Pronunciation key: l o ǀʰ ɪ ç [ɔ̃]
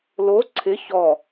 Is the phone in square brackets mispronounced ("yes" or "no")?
yes